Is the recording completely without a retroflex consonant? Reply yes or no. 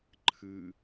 yes